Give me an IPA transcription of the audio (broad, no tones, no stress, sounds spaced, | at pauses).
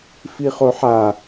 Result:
f i χ o ħ a